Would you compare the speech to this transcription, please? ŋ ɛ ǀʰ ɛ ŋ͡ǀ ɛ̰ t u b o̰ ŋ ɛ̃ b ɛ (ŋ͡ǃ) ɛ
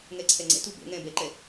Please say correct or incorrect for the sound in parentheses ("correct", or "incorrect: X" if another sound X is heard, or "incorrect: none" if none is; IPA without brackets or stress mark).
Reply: incorrect: ǃ